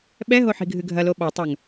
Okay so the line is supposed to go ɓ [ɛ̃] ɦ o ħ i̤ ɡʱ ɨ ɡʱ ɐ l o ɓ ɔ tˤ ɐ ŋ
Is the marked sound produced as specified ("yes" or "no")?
no